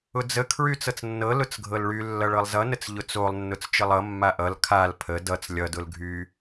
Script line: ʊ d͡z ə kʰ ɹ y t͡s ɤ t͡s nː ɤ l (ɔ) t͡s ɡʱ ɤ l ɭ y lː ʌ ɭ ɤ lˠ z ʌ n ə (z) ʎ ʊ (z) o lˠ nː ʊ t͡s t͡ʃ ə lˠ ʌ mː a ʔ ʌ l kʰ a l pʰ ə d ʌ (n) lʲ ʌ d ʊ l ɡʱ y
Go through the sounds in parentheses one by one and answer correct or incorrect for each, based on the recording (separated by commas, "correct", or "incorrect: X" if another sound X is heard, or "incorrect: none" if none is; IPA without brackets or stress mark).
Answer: incorrect: ʊ, incorrect: t͡s, incorrect: t͡s, incorrect: t͡s